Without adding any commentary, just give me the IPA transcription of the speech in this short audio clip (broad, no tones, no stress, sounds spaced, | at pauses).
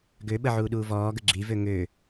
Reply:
ɡ ø ɓ ə ʕ uː ɗ uː v ɔː ɡ ə ɡ͡ǁ i v ø ŋ ø